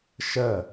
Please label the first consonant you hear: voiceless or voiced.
voiceless